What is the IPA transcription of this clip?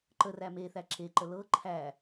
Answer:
ǃ ə r æ m e θ æ ǁ e ǃ ə l ɤ ǃʰ æ

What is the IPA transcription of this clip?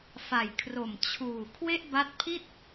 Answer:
f a˨˩ j kʰ r o˨˩ m t͡ɕʰ uː˨˩ kʰ w e˥˩ ʔ b a˦˥ t̚ pʰ i˥˩ t̚

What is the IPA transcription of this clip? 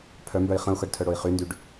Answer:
pʰ œ m b œ i̯ χ ə̃ u̯ x ɤ ɖ tʰ œ ɽ o i̯ χ y n d y ɖ

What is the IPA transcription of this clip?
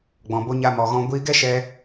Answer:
ɡ͡b ɔ̃˧ b o˦ ɲ a˦ m ɔ˧ ɣ ɔ̃˦ ɡʷ i˧ ɡ ɛ˦ ʃ ɛ˧

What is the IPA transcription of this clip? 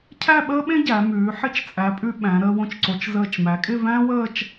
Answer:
cʰ æ˥˧ ɓ əː˥ ɓ ẽ˥ ɟ æ˩˧ m ʉː˩˧ ħ ɪ˥˧ t͡ʃ t͡sʼ æ˩˧ pʼ ʉ˧ ɓ æ̃˩˧ ɾ əː˧ w õ˧ t͡ʃ ǀ o˩˧ t͡ʃ z əː˧˩ t͡ʃ m æ˩˧ kʼ ɪ˥˧ v æ̃˥ w əː˥˧ t͡ʃ

